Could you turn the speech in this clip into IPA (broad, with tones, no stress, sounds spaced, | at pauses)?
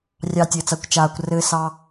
rʲ ɑ˧ tʲ ɘː˨ t͡s a˧ kʷ t͡ʃ aː˨ kʷ r ɘː˧ s ɑ˧